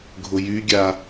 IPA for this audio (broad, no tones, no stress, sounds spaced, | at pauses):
ɡʱ ʊ j y ɡʲ a